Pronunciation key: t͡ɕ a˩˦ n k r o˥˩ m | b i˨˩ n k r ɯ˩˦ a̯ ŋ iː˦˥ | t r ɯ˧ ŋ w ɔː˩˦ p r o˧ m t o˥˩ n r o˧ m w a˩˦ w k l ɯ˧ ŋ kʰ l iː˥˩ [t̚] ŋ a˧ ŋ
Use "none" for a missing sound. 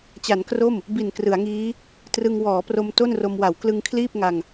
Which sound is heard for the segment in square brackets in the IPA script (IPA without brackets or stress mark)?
p̚